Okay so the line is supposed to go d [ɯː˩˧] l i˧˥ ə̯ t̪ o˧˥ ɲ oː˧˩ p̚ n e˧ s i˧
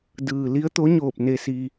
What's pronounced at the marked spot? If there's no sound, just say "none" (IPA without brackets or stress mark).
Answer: ɯː˩